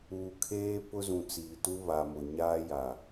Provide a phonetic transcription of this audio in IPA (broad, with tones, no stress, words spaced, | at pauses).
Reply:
uː˨kʰeː˦ pʊ˦zũ˨t͡siː˨tu˦ βa˨mʊ˨ ɲaː˦ja˨